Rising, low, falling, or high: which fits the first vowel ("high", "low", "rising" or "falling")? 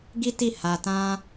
high